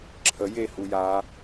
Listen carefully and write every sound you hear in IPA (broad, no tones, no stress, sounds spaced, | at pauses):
ǁʰ ə j e h u j a